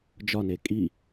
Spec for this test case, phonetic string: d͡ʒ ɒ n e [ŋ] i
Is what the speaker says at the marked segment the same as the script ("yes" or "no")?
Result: no